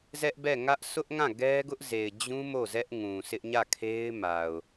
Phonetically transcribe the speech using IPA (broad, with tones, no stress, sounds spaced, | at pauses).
z ɛ˦ ʔ b ɛ˦˨ ŋ ä˦ ʔ s ʊ˦ ʔ ŋ ã˦˨ ɡ ɛ˦ ɡ ʊ˦ ʔ z e˨ ɪ̯ d͡ʑ ũ˦ m o˦˨ z ɛ˦ ʔ ŋ ũ˨ sʰ ɪ˦ ʔ ɲ ä˦˨ kʰ e˦ ɪ̯ m a˨ ʊ̯